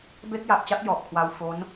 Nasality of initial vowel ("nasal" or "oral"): oral